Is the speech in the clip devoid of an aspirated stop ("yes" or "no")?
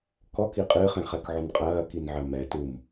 yes